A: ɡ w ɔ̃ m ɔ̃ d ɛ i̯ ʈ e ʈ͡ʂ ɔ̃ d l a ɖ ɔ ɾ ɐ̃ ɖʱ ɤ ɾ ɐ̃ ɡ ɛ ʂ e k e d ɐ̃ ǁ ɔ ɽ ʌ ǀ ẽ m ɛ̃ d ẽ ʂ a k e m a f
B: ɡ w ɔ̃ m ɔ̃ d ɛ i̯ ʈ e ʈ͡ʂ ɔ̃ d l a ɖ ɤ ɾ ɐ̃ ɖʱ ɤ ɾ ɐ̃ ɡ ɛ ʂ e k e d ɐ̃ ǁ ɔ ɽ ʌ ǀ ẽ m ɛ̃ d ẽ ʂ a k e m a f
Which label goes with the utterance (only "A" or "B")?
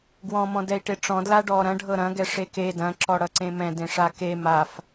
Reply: A